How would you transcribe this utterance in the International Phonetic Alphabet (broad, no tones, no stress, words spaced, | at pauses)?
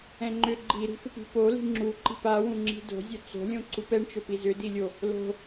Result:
ɛ̃ŋ͡ǃʏ ɡ͡ǃiɾi̤fɪpi̤ poli̤ ŋ͡ǁu ǃi̤pawũŋ͡ǁi̤ do̤zʲɵ t͡so̤lʲõ ǀupɛɳt͡ʃɵpi zʏdilʲo | lo̤